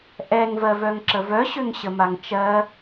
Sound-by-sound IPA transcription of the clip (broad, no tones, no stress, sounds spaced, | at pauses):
ʔ ɛ ŋ v ɜ v œ ŋ ǁ ə v œ ɕ ø ŋ ɕ ə m a ŋ t͡ʃ ɜ